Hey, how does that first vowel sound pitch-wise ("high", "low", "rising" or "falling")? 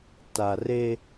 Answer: low